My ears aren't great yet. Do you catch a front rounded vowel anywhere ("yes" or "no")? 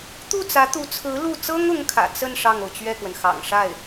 no